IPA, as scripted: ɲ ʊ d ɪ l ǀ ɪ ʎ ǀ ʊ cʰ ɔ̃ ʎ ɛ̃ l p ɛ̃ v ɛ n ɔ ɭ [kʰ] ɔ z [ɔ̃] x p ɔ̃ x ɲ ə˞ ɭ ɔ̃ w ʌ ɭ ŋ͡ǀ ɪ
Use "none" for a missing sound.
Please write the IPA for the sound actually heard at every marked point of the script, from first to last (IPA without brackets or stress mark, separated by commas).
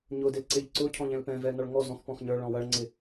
ŋ, ɔ̃